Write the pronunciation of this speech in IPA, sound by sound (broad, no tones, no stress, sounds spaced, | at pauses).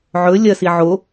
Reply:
ʕ ɵ lʲ ɐ s i ʕ o